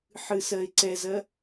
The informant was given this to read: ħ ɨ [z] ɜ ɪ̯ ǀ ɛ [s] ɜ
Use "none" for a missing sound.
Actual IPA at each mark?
s, z

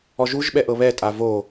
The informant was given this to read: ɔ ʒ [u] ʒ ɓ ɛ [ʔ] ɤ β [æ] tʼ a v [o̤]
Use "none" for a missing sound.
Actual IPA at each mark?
u, ʔ, ɛ, o

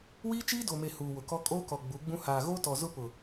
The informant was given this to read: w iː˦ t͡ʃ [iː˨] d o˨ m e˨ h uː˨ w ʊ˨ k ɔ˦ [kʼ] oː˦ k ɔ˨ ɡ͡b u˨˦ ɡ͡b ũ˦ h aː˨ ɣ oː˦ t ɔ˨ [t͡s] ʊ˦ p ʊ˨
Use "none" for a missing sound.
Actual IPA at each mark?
iː˦, kʼ, z

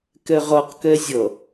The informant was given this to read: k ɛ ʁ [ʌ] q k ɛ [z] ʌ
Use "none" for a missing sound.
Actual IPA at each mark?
ʌ, zʲ

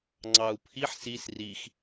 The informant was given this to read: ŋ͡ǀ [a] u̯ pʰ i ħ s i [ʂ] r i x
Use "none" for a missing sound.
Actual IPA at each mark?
ɑ, s

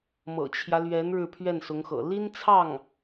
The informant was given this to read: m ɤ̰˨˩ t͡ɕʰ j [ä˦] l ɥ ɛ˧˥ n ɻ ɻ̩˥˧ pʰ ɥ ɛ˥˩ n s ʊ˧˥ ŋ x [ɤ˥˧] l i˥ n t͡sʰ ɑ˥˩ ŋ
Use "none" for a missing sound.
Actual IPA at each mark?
ä˦, ɤ̰˨˩

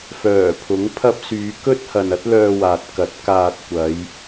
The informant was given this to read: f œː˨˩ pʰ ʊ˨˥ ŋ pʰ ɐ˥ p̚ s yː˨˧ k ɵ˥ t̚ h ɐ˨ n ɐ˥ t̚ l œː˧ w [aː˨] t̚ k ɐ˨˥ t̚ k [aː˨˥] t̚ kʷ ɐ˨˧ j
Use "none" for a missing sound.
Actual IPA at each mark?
aː˨, aː˧

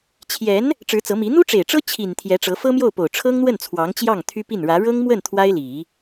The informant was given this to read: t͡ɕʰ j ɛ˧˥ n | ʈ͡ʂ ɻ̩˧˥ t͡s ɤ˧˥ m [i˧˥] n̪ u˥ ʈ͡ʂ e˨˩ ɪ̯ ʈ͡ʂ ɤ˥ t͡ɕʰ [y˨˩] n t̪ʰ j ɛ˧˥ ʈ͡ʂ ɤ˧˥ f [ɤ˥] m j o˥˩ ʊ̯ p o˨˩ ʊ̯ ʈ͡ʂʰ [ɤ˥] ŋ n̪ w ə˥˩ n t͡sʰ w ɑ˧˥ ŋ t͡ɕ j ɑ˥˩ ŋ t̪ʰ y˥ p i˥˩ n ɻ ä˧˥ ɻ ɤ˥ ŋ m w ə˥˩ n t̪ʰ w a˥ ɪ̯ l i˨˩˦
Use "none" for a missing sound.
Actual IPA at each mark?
i˧˥, i˨˩, ɤ˥, ɤ˥

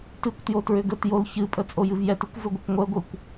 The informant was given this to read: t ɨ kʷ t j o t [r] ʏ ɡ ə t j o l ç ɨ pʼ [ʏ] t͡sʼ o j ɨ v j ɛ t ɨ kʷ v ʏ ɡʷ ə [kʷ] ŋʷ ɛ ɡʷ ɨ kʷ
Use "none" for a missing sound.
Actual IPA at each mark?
ɹ, ə, kʷ

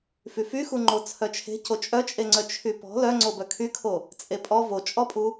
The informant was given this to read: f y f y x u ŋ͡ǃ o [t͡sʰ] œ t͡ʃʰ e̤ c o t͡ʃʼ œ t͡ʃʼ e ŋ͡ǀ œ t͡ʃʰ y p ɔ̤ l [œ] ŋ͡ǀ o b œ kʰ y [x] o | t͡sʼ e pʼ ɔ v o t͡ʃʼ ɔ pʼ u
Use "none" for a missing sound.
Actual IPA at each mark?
t͡sʰ, œ, kʰ

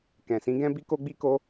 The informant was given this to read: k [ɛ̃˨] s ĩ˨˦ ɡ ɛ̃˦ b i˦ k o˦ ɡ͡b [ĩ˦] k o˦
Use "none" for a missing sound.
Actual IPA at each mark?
ɛ̃˨, i˦

